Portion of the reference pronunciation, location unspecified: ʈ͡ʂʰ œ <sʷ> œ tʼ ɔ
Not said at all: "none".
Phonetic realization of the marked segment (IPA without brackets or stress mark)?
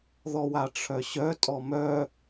ɕ